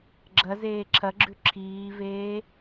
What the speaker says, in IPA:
ɡ͡ǁɐ zeːǁʰɐɡ͡ǁʉ ǁʰiːveː

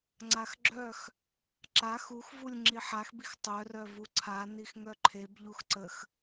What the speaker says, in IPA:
ŋ͡ǀaxɡ͡ǁœx | ǁa xuxvulʲ ŋ͡ǁiħaxbix tˤœrœvu ǀʰanix ŋœǃʰebʎux ǀəx

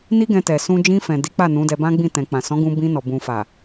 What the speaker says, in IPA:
ni˦ɡɛ̃˧tɛ˨ sũ˧d͡ʒĩ˧fɛ̃˨ di˨˦k͡pa˦˨ nũ˨˦dɛ˧bã˦ɡ͡bĩ˦˨ tɛ̃˨k͡pã˨sɔ̃˨˦ ɡũ˧bĩ˧nɔ˨ bũ˨fa˨

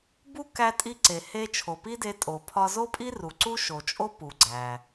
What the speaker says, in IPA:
bu˥ kæ˧tʼi˧ǀe˩ he˧ t͡ʃʰo˩pi˥de˧ tʼo˩pʰɒ˧zo˥pʼi˥ ru˩ǀu˥ʃo˩t͡ʃʼo˥ pu˩ɡ͡ǀæ˩

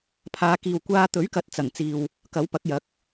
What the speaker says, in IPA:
pʰaː˨˧kiː˨wkʷaː˧ t̪ɵ˨˥ɥkɐ˨˥t̚t͡sɐ˨˩ŋt͡siː˨w | kɐ˨˥wpɐ˨˥k̚jɐ˨˥k̚

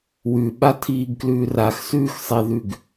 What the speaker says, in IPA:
wʉɓatʰiːɡklʉː raxsʉːxsˤeðʉɡ

